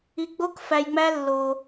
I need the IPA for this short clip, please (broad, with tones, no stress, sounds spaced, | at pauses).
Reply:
i˧ ɡ͡b o˦ k f æ˧ j ŋ͡m æ˦ lː o˧